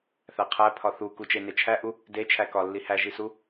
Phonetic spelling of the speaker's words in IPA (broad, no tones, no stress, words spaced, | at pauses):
θæqʰæpʰɒ θukut͡ʃene t͡ʃʰæʔu | det͡ʃʰæ kɒ lːihæʒisu